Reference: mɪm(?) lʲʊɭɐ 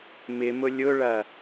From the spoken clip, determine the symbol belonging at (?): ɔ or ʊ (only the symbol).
ʊ